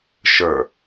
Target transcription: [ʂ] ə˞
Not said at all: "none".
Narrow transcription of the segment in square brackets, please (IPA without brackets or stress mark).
ʃ